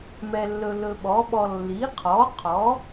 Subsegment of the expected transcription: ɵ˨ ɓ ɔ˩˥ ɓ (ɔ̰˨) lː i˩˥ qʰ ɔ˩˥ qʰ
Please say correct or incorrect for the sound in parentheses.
incorrect